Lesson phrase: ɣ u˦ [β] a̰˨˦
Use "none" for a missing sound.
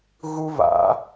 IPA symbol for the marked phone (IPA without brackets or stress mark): β